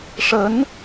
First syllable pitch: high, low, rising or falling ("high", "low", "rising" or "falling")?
rising